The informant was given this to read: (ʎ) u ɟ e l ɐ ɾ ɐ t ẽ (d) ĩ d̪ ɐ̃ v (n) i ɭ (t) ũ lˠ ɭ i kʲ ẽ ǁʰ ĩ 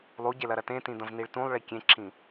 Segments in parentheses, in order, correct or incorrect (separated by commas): incorrect, incorrect, correct, correct